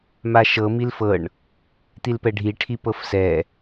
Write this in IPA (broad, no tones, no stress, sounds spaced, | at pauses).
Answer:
m a ʃ ɤ m i l f ɤ ɳ | t̪ i l p ɛ ɖʱ i ʈʰ i p ɤ f s ɛ